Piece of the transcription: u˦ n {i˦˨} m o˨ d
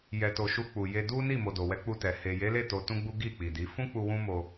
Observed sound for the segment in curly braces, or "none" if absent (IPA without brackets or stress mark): i˦˨